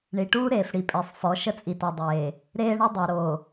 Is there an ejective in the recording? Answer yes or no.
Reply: yes